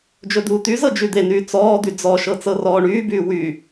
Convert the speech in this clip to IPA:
d͡ʒ ɵ d̪ uː t̪ y z ɤ d͡ʒ y d̪ e n yː t͡s ɔː d̪ y d͡z ɔ ʃ ɤ t͡s ɤ r ɔː ɳ yː b yː w y

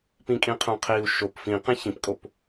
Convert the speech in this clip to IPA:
p ĩ kʼ ĩ qʰ õ qʰ i u̯ ʃ o p f ĩ q ẽ ç ĩ p kʼ o p

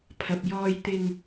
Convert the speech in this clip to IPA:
pʰ ɐ˨ p̚ j ɔː˧ j t̪ ɪ˧ ŋ

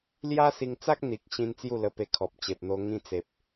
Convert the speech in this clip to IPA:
l j a˦ s i˧ ŋ t͡s a˦ k̚ n̪ i˨ k̚ ɕ ĩ˦ n t͡s j u˥˧ l ə˧ p e˧ kʰ ɔ˨ p̚ t͡ɕ e˨ p̚ n̪ o˧ ŋ ĩ˧ t͡s e˨ p̚

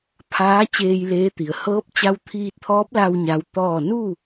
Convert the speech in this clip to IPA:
pʰ aː˧˥ t͡ɕ eː˧ j l eː˧˥ t̪ i˩ ə̯ h ɤː˧˥ p̚ t͡ɕ a˧ w t̪ʰ iː˧ t̚ t̪ʰ ɔː˧˥ p̚ l a˧ w ɲ a˧˥ w t̪ ɔː˥˨ n u˥˨

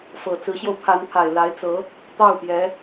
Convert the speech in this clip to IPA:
f ɤ˨˩ t͡s ɹ̩˧˥ ɕ j o˧ ʊ̯ pʰ a˧˥ n pʰ a˨˩ ɪ̯ l a˧˥ ɪ̯ t͡s ɤ˧˥ | t̪ ɑ˥˩ ʊ̯ p j ɛ˧˥

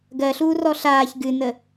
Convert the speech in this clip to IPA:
ɡ ɜ ɬ uː r ɔ ɬ aː ç ɡ ɨ n ə

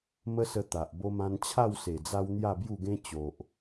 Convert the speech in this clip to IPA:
m ə˦ s ə˧ t̪ a˨ ʔ b o˧ m ã˧ n t͡ɕʰ a˥˧ w s e˨˩ d͡z a˧ w n̪ j a˥˧ b j u˥˧ ɡ ẽ˦ t͡ɕ o˨ ʔ

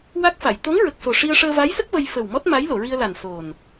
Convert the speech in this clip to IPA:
w a˦˥ k̚ f a˨˩˨ j t̪ o˧˥ ŋ ɹ ə˨˩ k̚ s o˨˩ ʂ i˧ ə̯ ʂ əː˧ v a˧˥ j s ə˦˥ k̚ v ə˧ j f ə˨˩ w m ɔ˦˥ t̚ m a˧˥ j l o˨˩˨ ɹ i˧ ə̯ l a˨˩ n s o˨˩ n

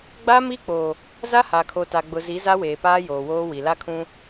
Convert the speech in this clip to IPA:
ɡ͡b a˦ m i˦ k͡p o˨ | z a˦ h a˨ kʰ o˨ t a˨ ɡ͡b ʊ˨ z i˨˦ z a˦ w eː˨ p aː˦ j oː˨ w oː˦ w i˨ l a˦ kʰ ũ˦

